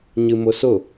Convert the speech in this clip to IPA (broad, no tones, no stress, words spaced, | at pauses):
ɲɨmʊsʊ